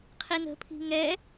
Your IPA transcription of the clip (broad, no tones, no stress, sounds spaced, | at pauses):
qʰ i n ə̤ pʰ i̤ ŋ ɛ